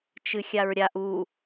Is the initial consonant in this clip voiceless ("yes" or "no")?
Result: yes